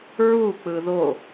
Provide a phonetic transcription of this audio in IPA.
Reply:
ɹ u k͡p ɯ ð o

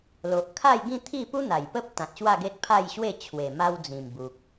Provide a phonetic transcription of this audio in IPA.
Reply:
l o˨ ʔ kʰ a˥˧ j ɡ ĩ˥˧ t̪ʰ i˥˧ p u˦ n̪ a˨˩ j p ə˦ p̚ t̪ ã˨ t̚ ɕ w a˥˧ ɡ e˦ t̚ pʰ a˥˧ j ɕ w e˥˧ t͡ɕʰ w e˨˩ m a˧ w d͡z ĩ˨˩ m b u˨ k̚

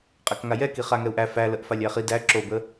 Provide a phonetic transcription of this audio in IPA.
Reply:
qʼ æ k ŋ a j ɛ k i χ a ŋ ɛ u̯ ʔ æ f æ l ə ʔ f a lʲ æ χ i d æ ǁ o b ə

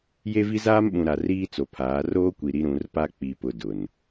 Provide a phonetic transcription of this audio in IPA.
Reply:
j e˦ v i˦ z aː˦ m ɓ ũ˨ ɾ a˨ r iː˦ t͡s o˨ pʰ aː˨˦ r oː˦ kʷ i˨ ɾ i˦ ɾ ũ˨˦ r p a˦ k͡p i˨ p ʊ˨ d ʊ˨ n

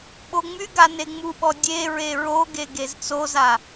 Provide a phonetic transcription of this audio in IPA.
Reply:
ɓ o ŋ͡m y ɡ a n e ŋ͡m u ɓ ɔ dʲ e ɹ e ɹ o ɡ e ɡ e z t͡s o z a

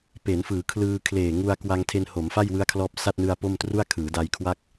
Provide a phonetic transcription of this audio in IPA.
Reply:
p e˩˦ n f ɯː˩˦ kʰ l ɯː˧ kʰ l eː˨˩ ŋ u˧ a̯ k w a˧ ŋ tʰ e˧ n h o˩˦ m f a˥˩ j w ɯ˦˥ a̯ kʰ l ɔː˦˥ p̚ s a˥˩ t̚ n ɯ˧ a̯ p o˥˩ m t r u˥˩ a̯ kʰ ɯː˩˦ d a˧ j kʰ w a˥˩ k̚

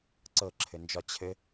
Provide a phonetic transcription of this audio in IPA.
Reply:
ǀ ɤ ǁʰ ɘ n d͡ʒ ɒ t͡ɕʰ ɘ

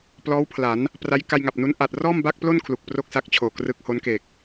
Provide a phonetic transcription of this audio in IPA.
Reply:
p l ɔː˦˥ w pʰ l a˩˦ n | p r a˦˥ j k a˧ j ŋ a˨˩ p̚ n u˦˥ n ʔ a˨˩ t̚ r ɔː˥˩ m b a˥˩ k̚ p l o˥˩ n kʰ l u˨˩ k̚ p r o˥˩ k̚ s a˦˥ k̚ t͡ɕʰ oː˨˩ k r ɯ˦˥ k̚ h o˦˥ n k e˨˩ k̚

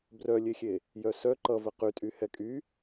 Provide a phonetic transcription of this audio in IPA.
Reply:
b r œ lʲ e xʲ e | j œ s œ ǃ ʌ v ə q y tʼ y h ɛ kʼ y

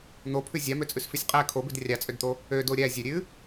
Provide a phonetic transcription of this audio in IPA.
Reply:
n̪ o pʰ ʉ zʲ ɑ m ø t͡sʼ ʉ s f ʉ sʲ qʼ æ kʰ o b ʉ d rʲ ɑ t͡sʼ ø d t̪ o | ø d o ɾʲ æ zʲ ø ɾʲ ʉ

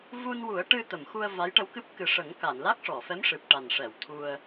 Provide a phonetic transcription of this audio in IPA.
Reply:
v u˧ n w u˨˩˦ ə̯ ʈ ɨ˧ t̪ ə˨˩˨ m x u˧ ə̯ v a˧˥ j ʈ ə˧˥ w k ɨ˦˥ p̚ k ɨ˨˩˦ ʂ ə˨˩˦ ŋ k a˨˩˨ n l a˦˥ k̚ ʂ ɔ˨˩˨ f ɛ˧˥ m ʂ ɨ˨˩ p̚ ʈ a˨˩ n ʂ ɛ˨˩˨ w t̪ʰ u˧ ə̯

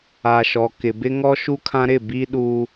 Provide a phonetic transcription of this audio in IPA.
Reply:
a˨ ʃ ɔ˨ k ɪ˨ b ɪ˦ ŋ ɔ˦ ʃ u˦ kʰ ã˦ ɾ ɪ˦˨ b i˦ ɗ uː˦

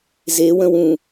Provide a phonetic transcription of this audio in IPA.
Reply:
z e w ə̃ w ũ

